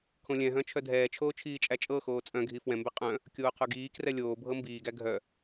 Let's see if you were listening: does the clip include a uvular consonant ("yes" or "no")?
yes